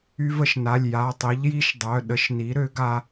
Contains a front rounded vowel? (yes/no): yes